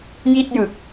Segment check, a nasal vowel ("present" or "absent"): absent